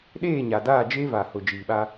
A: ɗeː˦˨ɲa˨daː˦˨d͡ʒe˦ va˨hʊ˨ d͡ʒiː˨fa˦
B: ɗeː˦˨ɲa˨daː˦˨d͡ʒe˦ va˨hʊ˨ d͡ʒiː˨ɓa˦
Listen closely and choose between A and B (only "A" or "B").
B